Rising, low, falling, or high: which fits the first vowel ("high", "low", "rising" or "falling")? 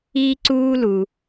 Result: high